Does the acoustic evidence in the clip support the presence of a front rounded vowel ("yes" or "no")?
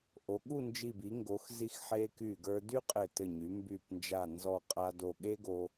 yes